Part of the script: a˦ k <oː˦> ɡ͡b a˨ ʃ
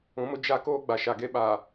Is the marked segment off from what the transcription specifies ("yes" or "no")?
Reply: no